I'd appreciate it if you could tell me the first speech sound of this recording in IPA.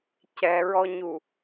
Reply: c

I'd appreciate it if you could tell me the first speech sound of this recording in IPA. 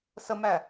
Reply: s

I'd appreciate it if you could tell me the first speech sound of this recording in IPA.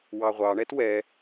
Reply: w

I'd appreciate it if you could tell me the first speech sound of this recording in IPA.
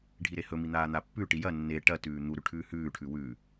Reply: ɖʱ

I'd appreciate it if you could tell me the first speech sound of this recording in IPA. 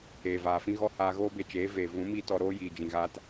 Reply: eː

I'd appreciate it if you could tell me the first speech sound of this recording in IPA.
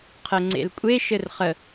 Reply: qʰ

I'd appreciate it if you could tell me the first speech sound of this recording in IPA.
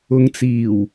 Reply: ʊ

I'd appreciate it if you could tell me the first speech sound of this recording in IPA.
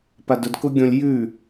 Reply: p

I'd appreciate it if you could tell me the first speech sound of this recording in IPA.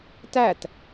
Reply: t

